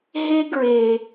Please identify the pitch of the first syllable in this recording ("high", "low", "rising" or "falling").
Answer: high